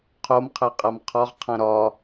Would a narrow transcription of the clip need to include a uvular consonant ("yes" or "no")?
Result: yes